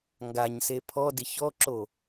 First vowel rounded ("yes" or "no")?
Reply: no